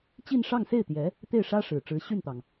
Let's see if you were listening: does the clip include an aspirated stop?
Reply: no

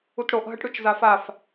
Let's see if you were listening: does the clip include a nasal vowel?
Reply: no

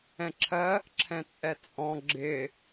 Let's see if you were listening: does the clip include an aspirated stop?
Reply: yes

